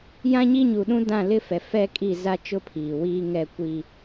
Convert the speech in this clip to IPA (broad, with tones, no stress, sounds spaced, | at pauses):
j ã˦ ɲ i˦ ɲ u˨ ɗ ũ˦ d ã˦˨ l ɪ˦ f ɛ˨ f ɛ˦ kʼ i˦˨ z a˦ t͡ʃ ʊ˦ pʰ iː˨ w iː˦ ŋ ɛ˦˨ kʷ i˦